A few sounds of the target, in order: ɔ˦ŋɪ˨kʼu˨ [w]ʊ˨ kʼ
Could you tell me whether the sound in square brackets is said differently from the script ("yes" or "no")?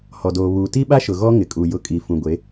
yes